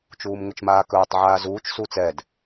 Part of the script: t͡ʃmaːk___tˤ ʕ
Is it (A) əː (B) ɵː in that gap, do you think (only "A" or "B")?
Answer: B